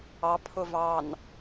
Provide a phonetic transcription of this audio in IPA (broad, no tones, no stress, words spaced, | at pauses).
ɑ pʰʊvɑn